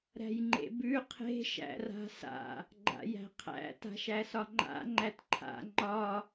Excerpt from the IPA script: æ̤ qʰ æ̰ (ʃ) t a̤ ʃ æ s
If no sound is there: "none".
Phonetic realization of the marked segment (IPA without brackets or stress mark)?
none